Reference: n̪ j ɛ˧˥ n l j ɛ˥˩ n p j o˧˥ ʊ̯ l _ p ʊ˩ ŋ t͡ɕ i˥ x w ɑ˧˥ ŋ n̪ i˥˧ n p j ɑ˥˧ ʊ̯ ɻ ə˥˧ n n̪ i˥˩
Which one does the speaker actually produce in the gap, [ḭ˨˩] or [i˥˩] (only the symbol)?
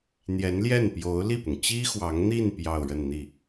i˥˩